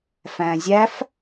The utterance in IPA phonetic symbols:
f æ̃ zʲ æ f

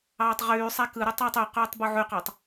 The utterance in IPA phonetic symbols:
ɑː tˤ ʁ yː sˤ æ k ɯ ɾ u tˤ ɯː tˤ y q yː tˤ b u ʕ y q ɑ tˤ

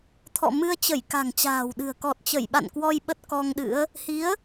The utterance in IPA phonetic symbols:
t̪ʰ ɔ̰˧˨ m ɨ˧ ə̯ t͡ɕ ə˧˩ j k a̤˨˩ ŋ t͡ɕ a̤ː˨˩ w ɗ ɨ̤˨˩ ə̯ k ɔ˨˩ t̚ t͡ɕ ə˧˩ j ɓ a̰˧˨ n k w ɔ˧ j ɓ ə˦˥ t̚ k ɔ˧ ŋ ɗ ɨ̰˧˥ ə̯ | h i˨˦ ə̯

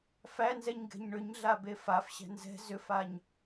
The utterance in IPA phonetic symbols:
f æ n z ɛ ɲ ɡ ɛ̤ ɲ ɳ ʏ ɲ ɮ a b e f a f ɕ æ̤ n z ɛ̤ z ʏ f a ɲ

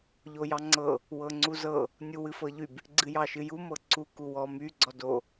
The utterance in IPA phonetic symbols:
ʎ o j ɑ ŋ͡ǀ ɤ | w ɤ ŋ͡ǀ u z ɤ | nʲ u w ɨ f ɤ ʎ y b | ɡ͡ǀ ɨ j ɑ ʃ ɨ j u m ɤ ǀ u k u w ɔ m y ɡ͡ǀ ɔ d o

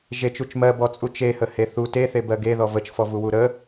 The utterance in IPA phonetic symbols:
ʒ e t͡ʃ u t͡ʃ m ɜ b ɔ t͡sʼ u t͡ʃ e h ə h e θ u t e θ e b ɜ ɡ e ð ɔ v ə t͡ʃ f ɔ v u w u ɾ ə

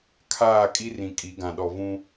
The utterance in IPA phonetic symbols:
kʰ aː˦˨ kʼ i˦ r ĩ˨ kʼ i˨˦ ɡ ã˨ ɗ ɔ˨ v ũ˦

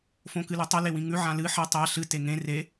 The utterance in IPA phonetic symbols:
f õ k ɨ l ʉ tˤ ɵ l e w ĩ ŋ ʉ ʕ ã l ɨ ħ ɐ tˤ a ɬ ɨ t e ŋ ẽ r e

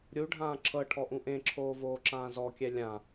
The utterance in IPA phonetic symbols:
ɾʲ u ɖʱ ãː ǁʰ ɤ ʈʰ ɔ ʔ ũ ʔ ẽ ǁʰ oː v oː ǁ ãː z ɔ kʲ ɛ lʲ ã

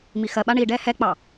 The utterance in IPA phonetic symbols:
m i x ɜ ɓ a ɳ i ɖ ɛ h ɛ k͡p ɑ

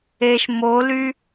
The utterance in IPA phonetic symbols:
e ʃ m o l y

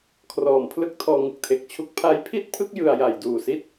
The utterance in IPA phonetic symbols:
kʰ r ɔː˨˩ m pʰ l ɯ˥˩ k̚ tʰ ɔː˧ ŋ ɯ˨˩ k̚ tʰ e˨˩ k̚ t͡ɕʰ u˦˥ k̚ pʰ a˦˥ j pʰ i˥˩ t̚ pʰ ɯ˥˩ k̚ j ɯ˧ a̯ j a˨˩ j d uː˨˩ s i˥˩ t̚

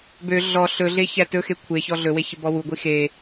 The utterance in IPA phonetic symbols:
b ø ɮ ɔ ɬ ɵ ɮ e ç æ t ɵ x e kʷʰ e ç ɔ ɮ ɵ w e ç ə b ɔ w u ɡʷ i x e

